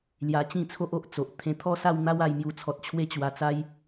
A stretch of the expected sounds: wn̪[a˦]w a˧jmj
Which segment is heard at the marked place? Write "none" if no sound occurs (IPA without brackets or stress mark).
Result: a˦